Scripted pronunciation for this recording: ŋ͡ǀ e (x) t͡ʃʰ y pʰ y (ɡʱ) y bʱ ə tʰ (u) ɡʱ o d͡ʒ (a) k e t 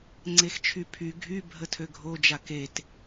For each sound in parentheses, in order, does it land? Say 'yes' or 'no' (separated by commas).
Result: yes, yes, no, yes